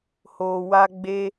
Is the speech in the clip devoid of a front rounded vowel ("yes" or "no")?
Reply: yes